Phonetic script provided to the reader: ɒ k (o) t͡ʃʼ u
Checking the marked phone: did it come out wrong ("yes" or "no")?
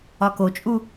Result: no